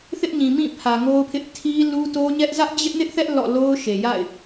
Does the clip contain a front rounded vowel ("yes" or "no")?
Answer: no